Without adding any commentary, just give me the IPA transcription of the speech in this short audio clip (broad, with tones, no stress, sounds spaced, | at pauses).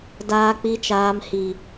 d aː˨ k͡p i˨ t͡ʃ aː˨ m h i˨